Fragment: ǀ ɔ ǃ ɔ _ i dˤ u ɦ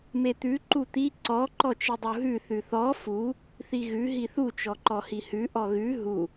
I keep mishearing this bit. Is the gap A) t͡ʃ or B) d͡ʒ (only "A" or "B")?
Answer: A